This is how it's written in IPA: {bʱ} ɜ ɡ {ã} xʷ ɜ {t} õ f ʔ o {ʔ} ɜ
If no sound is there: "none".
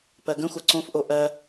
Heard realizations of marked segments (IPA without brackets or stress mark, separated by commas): p, ə̃, ǀ, ʔ